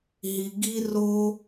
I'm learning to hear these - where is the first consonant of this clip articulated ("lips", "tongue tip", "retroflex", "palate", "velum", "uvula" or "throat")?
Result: throat